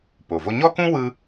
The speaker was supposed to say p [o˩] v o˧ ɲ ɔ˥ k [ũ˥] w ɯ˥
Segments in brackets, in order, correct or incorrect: correct, correct

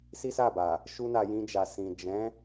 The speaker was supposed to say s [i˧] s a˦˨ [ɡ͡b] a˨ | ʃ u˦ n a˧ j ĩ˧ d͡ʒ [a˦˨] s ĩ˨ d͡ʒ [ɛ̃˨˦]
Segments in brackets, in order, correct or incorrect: incorrect: i˦, incorrect: b, incorrect: a˨, correct

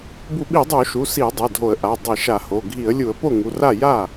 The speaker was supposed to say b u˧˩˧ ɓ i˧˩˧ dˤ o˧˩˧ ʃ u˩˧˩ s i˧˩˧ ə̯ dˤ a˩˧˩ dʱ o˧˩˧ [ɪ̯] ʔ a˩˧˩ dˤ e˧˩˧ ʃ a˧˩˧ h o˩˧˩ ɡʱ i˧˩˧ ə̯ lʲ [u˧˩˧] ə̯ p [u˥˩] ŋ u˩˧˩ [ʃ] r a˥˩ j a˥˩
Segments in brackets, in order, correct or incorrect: incorrect: ə̯, correct, incorrect: o˥˩, incorrect: none

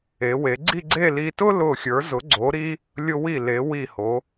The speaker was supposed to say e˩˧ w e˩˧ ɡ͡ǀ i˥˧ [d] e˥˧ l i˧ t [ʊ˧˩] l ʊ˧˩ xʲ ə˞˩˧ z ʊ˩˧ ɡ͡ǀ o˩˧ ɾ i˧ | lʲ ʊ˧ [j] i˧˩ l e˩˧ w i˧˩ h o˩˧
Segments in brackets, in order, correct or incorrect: incorrect: ɡ͡ǀ, incorrect: ʊ˥, incorrect: w

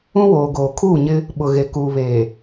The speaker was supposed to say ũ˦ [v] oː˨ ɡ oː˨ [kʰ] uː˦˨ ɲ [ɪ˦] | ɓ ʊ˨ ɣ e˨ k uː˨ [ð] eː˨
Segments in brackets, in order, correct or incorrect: incorrect: w, correct, correct, incorrect: β

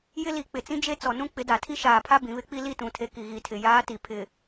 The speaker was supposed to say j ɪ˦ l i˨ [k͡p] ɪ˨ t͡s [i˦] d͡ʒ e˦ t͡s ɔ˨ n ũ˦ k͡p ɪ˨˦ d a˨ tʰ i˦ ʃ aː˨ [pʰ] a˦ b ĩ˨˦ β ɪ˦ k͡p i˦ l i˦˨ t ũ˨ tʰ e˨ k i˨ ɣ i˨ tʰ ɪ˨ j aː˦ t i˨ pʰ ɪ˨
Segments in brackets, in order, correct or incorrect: correct, incorrect: ĩ˦, correct

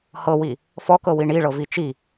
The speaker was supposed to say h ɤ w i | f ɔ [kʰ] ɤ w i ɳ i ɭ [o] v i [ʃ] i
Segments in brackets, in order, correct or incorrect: incorrect: k, incorrect: ɤ, incorrect: t͡ʃ

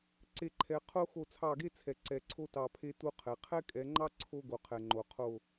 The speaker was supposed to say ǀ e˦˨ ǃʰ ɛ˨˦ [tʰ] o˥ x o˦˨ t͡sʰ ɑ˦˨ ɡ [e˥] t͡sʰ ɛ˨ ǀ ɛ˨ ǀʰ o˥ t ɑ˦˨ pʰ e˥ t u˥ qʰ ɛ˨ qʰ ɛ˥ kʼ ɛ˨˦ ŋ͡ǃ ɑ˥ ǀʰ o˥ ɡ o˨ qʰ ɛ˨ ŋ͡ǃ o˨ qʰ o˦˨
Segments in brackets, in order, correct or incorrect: incorrect: qʰ, correct

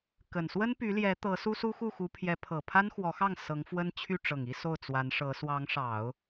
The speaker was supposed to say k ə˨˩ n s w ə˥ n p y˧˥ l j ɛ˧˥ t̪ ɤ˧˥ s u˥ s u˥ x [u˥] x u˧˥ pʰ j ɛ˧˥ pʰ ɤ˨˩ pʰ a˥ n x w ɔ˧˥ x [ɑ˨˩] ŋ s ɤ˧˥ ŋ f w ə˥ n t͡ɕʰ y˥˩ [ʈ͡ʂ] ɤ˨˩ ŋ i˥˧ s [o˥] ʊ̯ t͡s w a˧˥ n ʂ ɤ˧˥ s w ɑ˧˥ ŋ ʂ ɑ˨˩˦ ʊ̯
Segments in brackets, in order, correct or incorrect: incorrect: u˥˩, incorrect: ɑ˥˩, correct, incorrect: o˥˩

